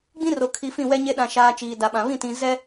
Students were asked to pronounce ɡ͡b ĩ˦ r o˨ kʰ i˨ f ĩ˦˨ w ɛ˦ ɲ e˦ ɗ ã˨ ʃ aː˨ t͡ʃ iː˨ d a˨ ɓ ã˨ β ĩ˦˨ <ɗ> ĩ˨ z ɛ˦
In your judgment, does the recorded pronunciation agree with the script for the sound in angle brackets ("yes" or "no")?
no